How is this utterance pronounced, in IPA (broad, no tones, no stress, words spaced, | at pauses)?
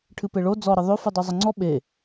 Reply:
ʈʰɨpeɭo d͡zɔ ɾəðˤø fɨdˤøzˤəŋ͡ǀɔ ɓe